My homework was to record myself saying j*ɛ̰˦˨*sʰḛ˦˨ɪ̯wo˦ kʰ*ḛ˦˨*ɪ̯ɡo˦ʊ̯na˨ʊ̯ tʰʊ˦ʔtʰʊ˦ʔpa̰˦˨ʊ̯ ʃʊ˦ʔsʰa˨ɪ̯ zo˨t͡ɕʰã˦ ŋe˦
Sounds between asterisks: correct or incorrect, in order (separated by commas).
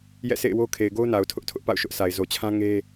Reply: correct, incorrect